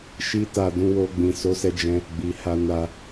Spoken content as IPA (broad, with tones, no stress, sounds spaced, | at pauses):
ʃ i˦ t a˦˨ d ũ˧ w o˧ ɡ͡b ĩ˨ s o˨˦ s ɛ˧ d͡ʒ ɛ̃˧ | ɡ͡b i˨ h a˧ n a˧